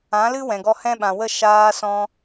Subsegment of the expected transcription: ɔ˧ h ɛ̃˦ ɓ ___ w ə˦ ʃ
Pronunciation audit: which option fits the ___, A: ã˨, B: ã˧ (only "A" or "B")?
A